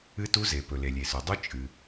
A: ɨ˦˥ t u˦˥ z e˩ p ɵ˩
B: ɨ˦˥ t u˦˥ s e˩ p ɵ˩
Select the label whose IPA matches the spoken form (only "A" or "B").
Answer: A